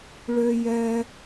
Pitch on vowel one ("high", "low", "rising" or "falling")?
high